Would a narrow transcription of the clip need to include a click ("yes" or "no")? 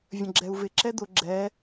yes